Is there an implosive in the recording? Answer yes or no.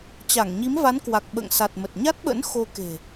yes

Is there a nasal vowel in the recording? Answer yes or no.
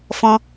yes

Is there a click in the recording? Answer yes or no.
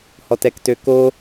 no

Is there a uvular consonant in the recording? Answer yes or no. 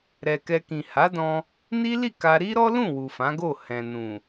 no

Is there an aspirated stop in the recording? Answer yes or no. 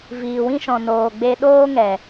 no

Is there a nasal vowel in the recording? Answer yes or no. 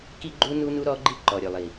no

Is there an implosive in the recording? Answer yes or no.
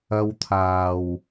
no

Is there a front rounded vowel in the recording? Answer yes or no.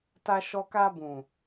no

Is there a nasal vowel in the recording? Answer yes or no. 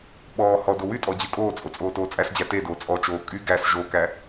no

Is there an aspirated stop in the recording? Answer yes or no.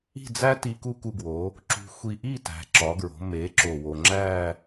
no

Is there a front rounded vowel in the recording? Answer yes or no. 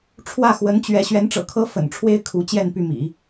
yes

